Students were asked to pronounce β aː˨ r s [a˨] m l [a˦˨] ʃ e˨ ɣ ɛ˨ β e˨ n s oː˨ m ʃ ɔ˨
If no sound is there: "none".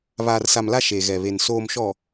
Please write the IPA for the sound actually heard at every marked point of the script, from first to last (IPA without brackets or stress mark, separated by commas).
a˨, a˦˨